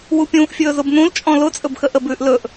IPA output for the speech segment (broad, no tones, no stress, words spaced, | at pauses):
wupʲũːʔfʲɵː zʊbnũlt͡ʃʼɔ̃ lʊ t͡sʼɵbxəʔəbʉːʔ lɵʔ